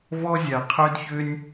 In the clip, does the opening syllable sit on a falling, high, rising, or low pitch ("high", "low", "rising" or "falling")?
high